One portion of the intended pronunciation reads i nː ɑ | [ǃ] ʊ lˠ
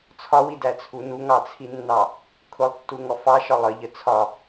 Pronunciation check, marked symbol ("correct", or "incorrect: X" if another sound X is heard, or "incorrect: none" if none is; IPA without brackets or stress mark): incorrect: kʰ